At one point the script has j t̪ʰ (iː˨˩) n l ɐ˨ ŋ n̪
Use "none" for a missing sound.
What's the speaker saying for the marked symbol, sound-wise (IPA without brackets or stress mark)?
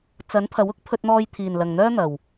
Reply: iː˨˩